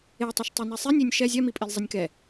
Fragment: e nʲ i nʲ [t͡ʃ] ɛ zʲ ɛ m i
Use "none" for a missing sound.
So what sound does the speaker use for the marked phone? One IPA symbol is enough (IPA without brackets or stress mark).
ʃ